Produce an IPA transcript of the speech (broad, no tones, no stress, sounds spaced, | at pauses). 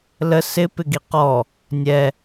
l ə s ɪ p ɪ ɡ i q ɔ | nʲ ɛ